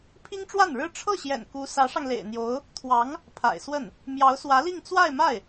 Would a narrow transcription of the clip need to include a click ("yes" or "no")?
no